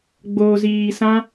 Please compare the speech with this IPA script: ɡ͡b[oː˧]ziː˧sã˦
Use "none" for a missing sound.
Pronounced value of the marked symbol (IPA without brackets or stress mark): oː˧